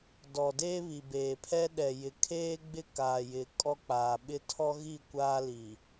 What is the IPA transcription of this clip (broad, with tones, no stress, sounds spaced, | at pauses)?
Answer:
d ɔ˨ d eː˦ β i˨ b eː˨ pʰ ɛ˦ ɗ ɛ˨ j ɪ˨ kʰ eː˦ ɡ͡b ɪ˦ k aː˨ j ɪ˨ kʼ ɔ˦ k͡p aː˨ ɓ ɪ˦ tʰ ɔ˦ ɣ i˦˨ kʷ aː˦ l i˨